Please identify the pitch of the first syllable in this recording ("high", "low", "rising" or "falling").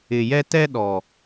low